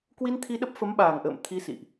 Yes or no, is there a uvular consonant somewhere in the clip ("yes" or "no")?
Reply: no